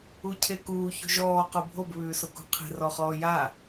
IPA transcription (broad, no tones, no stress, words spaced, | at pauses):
ucʰekuː ço̤ʒɔː qobʱob βʉːsokṳqʰe̤r ɔχɔːja